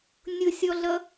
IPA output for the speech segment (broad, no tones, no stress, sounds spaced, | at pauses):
nʲ ʊ sʲ ɔ ɮ ʌ